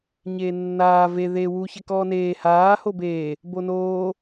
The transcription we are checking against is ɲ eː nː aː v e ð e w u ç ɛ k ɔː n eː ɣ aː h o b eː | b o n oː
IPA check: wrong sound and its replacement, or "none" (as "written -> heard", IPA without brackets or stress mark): ɣ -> h